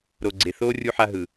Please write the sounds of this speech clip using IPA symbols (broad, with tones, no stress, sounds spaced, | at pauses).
ɾ o˨ ɡ͡ǀ e˨ θ oː˦ rʲ u˦ ħ a˦ ɦ ɯ˨